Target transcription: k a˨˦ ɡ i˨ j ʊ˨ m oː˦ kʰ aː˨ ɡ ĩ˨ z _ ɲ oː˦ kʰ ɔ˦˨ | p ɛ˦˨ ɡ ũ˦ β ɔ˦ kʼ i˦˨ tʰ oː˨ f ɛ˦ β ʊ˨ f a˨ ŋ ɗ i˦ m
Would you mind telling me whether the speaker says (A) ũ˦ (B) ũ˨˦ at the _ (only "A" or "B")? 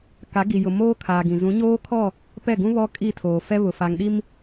B